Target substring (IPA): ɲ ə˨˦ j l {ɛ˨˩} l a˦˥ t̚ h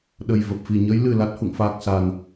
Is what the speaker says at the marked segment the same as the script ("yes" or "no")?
no